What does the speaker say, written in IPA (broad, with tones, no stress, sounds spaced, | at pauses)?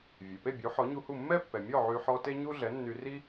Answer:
vʲ e˩ p e˥˩ bʲ u˩˥ ħ ɔ˩˥ ɲ u˧ h u˥˩ mː ɛ˥ pː ɛ˩ mʲ ɔ˥˩ ʕ y˧ ħ ɔ˥ t e˥ ɲ u˥ ɮ ɛ˩˥ nː y˧ r i˥